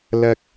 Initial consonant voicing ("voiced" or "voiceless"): voiced